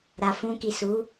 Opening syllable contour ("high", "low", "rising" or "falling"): low